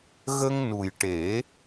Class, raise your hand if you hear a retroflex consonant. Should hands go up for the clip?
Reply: yes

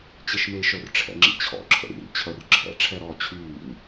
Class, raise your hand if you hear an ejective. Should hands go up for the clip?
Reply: no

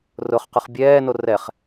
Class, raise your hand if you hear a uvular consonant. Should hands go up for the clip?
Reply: yes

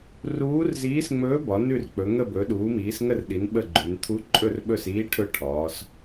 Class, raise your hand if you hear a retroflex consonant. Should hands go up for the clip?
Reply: yes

